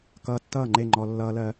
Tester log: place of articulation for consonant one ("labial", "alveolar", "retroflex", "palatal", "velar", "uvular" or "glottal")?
velar